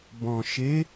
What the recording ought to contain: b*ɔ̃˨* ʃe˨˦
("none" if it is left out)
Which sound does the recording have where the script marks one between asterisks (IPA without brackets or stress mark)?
ɔ̃˨